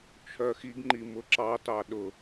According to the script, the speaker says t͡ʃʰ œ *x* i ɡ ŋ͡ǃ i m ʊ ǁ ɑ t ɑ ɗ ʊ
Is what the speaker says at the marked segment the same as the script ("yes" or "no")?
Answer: yes